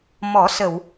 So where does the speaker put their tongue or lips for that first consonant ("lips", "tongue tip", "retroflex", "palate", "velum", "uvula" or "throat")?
lips